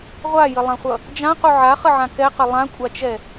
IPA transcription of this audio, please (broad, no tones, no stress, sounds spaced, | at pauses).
ʁʷ a j ə lˠ ã χʷ ʌ | d͡ʒ ã q u ʕ a χ ə ʕ ã k ɛ q ə lˠ ã kʷʼ a t͡ʃ ɛ